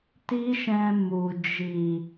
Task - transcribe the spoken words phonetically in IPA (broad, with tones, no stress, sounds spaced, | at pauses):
t i˦ ʃ ɛ̃˧ m u˨ d͡ʒ i˨